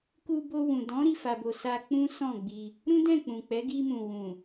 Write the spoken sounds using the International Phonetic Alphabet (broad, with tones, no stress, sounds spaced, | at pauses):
k u˧ b o˧ w ũ˨ d ɔ̃˨˦ ɾ i˦˨ f a˨ b o˨ s a˧ k͡p ũ˦ s ɔ̃˦˨ ɡ͡b i˧ | ɾ ũ˦ d ɛ̃˦˨ k͡p ũ˨ k͡p ɛ˨˦ ɡ i˧ m ũ˨ w ũ˨